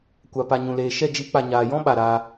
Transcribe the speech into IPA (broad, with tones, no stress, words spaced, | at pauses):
kʷa˨pa˨ ɲũ˨leː˨ ʃɛ˦˨d͡ʒi˨˦ k͡pa˨ɲaː˨jɔ̃˦ ɓa˨ɾaː˧